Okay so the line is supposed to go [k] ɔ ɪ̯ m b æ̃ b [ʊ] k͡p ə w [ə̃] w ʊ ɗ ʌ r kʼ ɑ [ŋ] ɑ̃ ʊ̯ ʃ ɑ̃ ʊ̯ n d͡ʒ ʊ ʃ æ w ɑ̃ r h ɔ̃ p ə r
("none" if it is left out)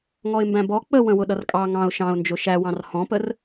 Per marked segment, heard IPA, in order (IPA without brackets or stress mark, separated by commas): ŋ, ɔ, ə̃, ŋ